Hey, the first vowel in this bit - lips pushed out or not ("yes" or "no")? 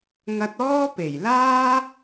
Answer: no